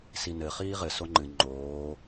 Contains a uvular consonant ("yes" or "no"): yes